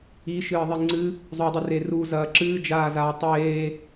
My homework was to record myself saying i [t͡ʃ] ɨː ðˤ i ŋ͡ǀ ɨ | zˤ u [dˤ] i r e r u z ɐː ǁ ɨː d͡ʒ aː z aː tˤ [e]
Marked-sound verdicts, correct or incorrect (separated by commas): incorrect, correct, incorrect